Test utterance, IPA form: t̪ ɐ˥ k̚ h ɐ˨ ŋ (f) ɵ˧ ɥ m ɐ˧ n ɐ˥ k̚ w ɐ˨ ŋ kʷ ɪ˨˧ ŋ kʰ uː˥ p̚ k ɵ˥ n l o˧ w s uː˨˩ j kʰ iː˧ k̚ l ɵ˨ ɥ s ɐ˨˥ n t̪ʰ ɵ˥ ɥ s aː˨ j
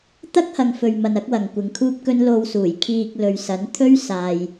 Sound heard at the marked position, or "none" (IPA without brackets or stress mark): f